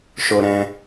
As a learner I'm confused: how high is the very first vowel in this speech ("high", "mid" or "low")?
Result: mid